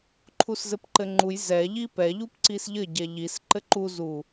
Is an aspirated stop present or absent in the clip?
present